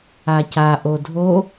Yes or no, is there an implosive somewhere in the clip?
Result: no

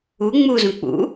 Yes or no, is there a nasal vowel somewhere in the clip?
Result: yes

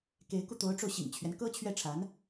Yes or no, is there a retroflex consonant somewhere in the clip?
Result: yes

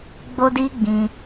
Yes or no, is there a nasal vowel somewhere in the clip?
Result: yes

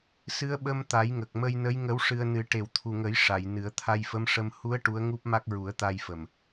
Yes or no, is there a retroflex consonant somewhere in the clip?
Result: yes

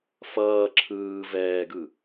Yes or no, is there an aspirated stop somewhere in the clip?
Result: yes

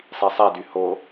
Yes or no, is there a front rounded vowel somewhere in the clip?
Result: yes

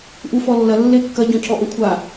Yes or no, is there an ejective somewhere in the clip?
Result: no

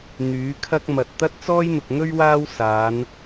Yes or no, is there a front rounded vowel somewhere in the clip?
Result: yes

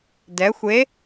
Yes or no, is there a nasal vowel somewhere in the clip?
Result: no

